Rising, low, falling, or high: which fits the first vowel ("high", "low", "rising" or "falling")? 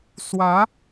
rising